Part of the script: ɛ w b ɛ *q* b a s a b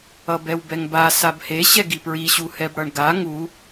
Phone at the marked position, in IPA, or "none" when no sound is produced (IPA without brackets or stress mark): ŋ